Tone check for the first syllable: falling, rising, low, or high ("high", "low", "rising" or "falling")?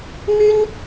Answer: high